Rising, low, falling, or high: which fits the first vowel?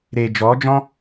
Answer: low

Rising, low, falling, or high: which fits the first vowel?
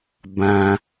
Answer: high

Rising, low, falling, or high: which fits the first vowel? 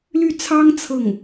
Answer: falling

